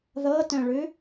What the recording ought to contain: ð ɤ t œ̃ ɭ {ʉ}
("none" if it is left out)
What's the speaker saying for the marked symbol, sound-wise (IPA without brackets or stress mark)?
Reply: ʉ